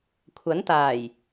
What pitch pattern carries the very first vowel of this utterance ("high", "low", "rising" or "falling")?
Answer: rising